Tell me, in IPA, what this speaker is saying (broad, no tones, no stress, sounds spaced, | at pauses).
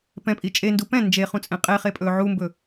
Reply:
p ɛ̃ pʼ i t͡ʃʼ e n d u p ɛ̃ n d͡ʒ e χ ũ t͡sʼ ẽ qʼ e χ e pʼ ɵː ʕ u m b ɵ